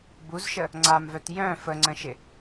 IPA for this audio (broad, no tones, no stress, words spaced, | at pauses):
buzʃə | ŋ͡ǀamvœt jœ̃ fəŋ͡ǀə̃ʃɪ